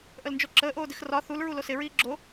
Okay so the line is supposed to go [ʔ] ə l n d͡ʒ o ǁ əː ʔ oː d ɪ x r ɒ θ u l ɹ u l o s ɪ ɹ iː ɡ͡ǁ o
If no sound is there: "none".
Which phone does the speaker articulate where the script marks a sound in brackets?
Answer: ʔ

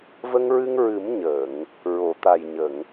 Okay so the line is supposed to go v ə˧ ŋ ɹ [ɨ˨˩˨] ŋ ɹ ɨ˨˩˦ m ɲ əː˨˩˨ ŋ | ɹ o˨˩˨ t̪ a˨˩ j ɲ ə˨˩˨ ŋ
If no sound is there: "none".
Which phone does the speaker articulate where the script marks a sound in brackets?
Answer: ɨ˧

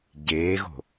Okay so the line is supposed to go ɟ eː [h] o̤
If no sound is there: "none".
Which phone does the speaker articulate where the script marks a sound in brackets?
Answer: ɣ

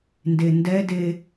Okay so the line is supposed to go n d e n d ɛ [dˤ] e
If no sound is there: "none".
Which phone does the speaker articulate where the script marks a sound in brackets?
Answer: d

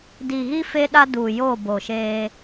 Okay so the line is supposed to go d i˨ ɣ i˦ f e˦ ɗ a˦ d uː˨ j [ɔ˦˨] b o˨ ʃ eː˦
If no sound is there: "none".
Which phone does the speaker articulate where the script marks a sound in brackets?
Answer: o˦˨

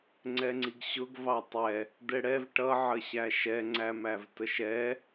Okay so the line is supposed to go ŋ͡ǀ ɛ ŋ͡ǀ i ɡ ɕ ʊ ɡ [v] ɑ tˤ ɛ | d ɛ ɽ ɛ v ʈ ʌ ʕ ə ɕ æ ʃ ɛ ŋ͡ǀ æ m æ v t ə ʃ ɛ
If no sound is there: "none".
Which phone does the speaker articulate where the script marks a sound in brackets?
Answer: v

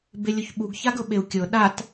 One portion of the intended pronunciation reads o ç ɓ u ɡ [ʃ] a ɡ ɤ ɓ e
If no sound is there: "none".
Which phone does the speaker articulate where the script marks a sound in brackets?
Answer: ç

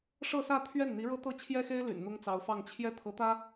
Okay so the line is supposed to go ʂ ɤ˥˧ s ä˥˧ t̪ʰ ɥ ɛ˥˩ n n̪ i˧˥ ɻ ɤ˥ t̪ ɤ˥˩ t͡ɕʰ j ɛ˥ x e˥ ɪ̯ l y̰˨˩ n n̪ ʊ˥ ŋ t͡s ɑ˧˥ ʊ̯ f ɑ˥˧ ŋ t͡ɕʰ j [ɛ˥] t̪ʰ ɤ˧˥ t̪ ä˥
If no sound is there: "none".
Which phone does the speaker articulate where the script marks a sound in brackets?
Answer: ɛ˥˩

